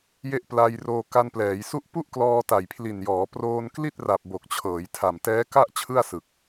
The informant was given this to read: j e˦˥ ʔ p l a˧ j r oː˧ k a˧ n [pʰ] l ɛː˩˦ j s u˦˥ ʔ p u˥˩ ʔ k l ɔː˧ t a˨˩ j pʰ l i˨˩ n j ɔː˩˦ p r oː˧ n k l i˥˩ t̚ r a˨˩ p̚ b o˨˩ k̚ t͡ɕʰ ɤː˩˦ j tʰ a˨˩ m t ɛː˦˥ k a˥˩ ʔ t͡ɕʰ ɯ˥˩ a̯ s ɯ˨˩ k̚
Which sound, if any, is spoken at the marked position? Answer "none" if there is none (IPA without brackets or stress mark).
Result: p